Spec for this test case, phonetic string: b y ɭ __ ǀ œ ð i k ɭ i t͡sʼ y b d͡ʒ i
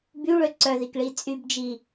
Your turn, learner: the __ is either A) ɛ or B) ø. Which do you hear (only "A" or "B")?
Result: B